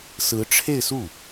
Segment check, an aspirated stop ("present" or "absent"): present